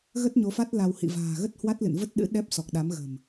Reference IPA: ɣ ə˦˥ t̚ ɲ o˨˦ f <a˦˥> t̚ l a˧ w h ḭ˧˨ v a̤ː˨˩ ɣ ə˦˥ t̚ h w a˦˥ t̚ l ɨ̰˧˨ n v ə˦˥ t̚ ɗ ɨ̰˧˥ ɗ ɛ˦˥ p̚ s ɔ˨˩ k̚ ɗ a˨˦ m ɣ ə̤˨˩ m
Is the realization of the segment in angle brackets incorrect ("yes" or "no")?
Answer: no